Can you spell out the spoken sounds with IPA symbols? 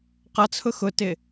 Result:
qʌt͡sʰʊ xʊtɪ

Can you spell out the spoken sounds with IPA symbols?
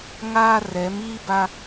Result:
ŋaː˦ rɛ˨˦m iː˦ba˦

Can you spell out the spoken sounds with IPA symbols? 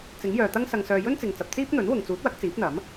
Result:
t͡sɪ˨˥ŋ jœː˨t̪ɐ˥ŋ sɐ˧ŋsœː˧ jɵ˥nt͡sɪ˨ŋt͡sɐ˨p̚ t͡siː˥p̚n̪ɵ˨˥n wʊ˨ŋt͡suː˨˥t̚wɐ˨˥k̚ t͡siː˨˥p̚n̪ɐ˨˥m

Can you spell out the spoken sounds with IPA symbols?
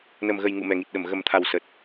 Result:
nə˨˩mɣə˨˩j ŋṵ˧˨ mɛ˨˩ ŋi˨˩t̚ɗə˧˩m ɣə˨˩mt̪ʰa˨˩w sə˨˩t̚

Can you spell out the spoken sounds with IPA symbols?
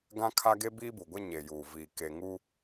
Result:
ɡã˦kʰa˦ ɡe˦biː˦bu˨ɡʷɛ˦ ɲe˨juː˨ vi˨ ke˨ŋu˦

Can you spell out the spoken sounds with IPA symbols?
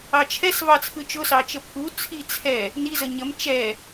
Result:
ɑt͡ʃʰɛs vɑt͡sʰɯt͡ʃʊ sɑt͡ʃəpʰu t͡sʰit͡sʰɛ | ni zəɲəm t͡ʃɛ

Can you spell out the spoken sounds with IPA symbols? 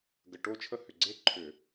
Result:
ɡə˨˩ʈo˦˨t͡ʃʰə˦˨ hʏ˨˩ɡ͡ǀe˦˨ ǃʰʏ˧˩˧

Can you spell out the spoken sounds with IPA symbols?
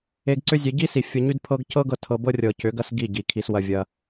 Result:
e˧ɡ ǀʏ˦zʲe˨˦ ɟi˦si˨ fʲɤ˧ɲy˦dpʰɤ˦ɡ cɤ˦ɡɤ˧ tʰɤ˧ bɤ˦rʲɤ˨ cʏ˨˦ɡɐ˦s ɡi˦˨ɟi˨ kʰi˧swɐ˧ vʲɐ˦

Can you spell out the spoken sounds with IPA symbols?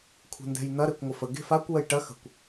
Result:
kʷʰɛ̤ndɛ̤jn̪ɐ ɾekʷŋʷɐfə ɡe̤fakʷ wəjʈɐ xə̤kʷ

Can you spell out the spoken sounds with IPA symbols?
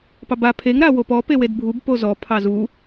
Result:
pɑba pʰeŋ ɾawopɔ pewedbʱub pozɔ pʰɑzu

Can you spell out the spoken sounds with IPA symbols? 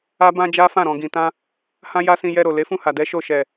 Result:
a˦bã˦ d͡ʒa˦fã˦˨ɾɔ̃˨ɡĩ˨ tã˧ | hã˦ja˦sĩ˧ jɛ˧ɾo˨ le˨˦fũ˦˨ha˨dɛ˨˦ ʃo˦˨ ʃɛ˨

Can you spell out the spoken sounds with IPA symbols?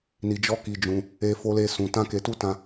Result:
ni˧d͡ʒɔ˦ki˧ d͡ʒũ˧ | e˦fo˦le˦ sũ˧ tã˦ke˧tu˦tã˧

